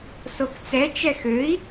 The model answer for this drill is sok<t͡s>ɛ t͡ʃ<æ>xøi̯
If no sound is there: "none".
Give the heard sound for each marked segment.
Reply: t͡s, ɛ

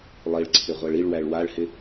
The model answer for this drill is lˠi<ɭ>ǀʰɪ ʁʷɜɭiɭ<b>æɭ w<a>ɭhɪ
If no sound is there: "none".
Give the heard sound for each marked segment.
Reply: ɭ, w, a

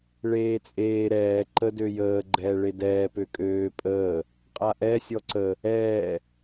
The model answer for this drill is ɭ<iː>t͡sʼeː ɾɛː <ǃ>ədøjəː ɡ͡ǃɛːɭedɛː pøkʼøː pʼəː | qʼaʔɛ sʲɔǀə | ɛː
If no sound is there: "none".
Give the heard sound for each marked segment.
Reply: eː, ǃ

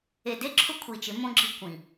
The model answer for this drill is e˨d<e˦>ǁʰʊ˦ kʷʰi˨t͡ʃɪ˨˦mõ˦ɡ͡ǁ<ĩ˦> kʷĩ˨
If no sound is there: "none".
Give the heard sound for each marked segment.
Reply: e˦, i˦

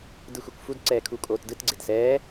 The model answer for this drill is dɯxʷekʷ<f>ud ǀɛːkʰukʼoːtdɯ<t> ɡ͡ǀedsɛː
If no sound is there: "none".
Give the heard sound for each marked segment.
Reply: f, t

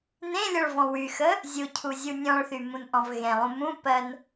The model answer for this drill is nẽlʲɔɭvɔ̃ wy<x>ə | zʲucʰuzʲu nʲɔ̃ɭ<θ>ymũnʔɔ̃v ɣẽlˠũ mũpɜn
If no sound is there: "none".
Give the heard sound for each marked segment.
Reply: x, θ

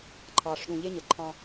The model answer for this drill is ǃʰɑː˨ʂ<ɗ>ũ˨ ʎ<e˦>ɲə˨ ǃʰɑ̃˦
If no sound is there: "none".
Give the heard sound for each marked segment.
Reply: ɗ, e˦

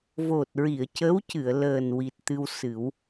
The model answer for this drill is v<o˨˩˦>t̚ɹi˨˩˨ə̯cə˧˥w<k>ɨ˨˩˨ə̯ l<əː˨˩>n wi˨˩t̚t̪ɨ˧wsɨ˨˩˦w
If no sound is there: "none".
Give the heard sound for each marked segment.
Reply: o˨˩, c, əː˨˩

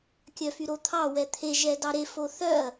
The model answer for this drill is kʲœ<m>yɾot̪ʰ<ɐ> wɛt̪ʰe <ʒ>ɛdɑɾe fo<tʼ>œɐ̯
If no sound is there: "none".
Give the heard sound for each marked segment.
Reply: f, ɑ, ʒ, θ

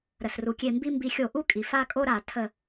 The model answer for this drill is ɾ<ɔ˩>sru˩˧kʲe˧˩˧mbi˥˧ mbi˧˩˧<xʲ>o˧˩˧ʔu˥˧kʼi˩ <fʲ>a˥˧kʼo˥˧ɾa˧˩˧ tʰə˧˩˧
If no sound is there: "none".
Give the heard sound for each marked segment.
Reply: ə˩, xʲ, f

